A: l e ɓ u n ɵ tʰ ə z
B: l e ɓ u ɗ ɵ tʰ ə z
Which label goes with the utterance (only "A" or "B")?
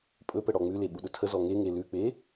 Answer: B